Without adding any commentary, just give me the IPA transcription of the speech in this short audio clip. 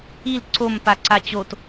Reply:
i l ǀ o m p a ǀ a t͡ɕ o t

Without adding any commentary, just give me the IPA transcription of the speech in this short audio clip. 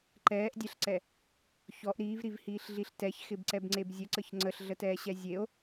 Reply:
ǃ ɛː ʔ dʲ ɛ ɬ ǀ ɛ | ç ɔ ʔ ɾ iː v ɾ i v h iː ɬ ɮ i ɬ t ɛ ç x ɪ b ǀ ɛ b ŋ͡ǀ e b zʲ ə ǀ ə ç ŋ͡ǀ ə ɬ ɮ ə t ɛː ɕ ɛ zʲ e o̯

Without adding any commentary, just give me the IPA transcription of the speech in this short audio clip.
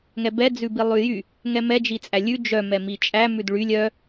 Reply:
ŋ ɛ b ɛ d͡z ʉ b i lˠ ʉ j y | ŋ ɛ m ɛ d͡ʒ i t͡sʼ æ lʲ ʉ d͡ʒ œ m ɛ m i t͡ʃʼ æ m ʉ d ɭ y lʲ œ

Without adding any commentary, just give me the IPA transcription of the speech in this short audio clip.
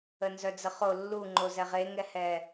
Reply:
ə n z œ d͡z ə χ o lː u ŋ͡ǃ o z ɛ ʁ e ŋ ɛ h ɛ

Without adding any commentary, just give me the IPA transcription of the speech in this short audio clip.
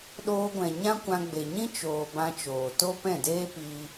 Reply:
ɗ oː˧ ɡʷ ɛ̃˨ ɲ ã˦ kʷ ã˧ ɡ͡b e˨ ɲ ĩ˦ t͡ʃ oː˨ b ã˧ t͡ʃ oː˨ t o˦ p ɛ̃˦˨ d eː˦ p iː˧

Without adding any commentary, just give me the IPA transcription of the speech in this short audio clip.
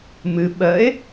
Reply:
m ɨ ɓ ɜ e̯

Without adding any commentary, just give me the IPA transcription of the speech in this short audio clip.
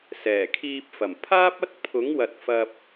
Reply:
s ɛː˨˩ kʰ iː˧ p̚ f ɐ˨˩ m pʰ aː˥ p̚ ɐ˥ t̚ pʰ ʊ˨˥ ŋ w ɐ˨ t̚ f ɐ˧ p̚

